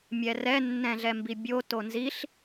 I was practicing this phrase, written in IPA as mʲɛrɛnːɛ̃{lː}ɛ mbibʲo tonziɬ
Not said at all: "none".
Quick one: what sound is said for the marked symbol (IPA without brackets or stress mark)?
ɮ